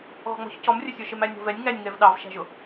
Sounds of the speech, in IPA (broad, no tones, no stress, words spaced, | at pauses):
ɣɔ̤ŋ͡mɔ̤ç cɔmrʲəsʲə˞ ʃɪmænʲɔ̤vɛnʲ ŋænʲŋɛv ɗɑvʃæ̤ʒʊ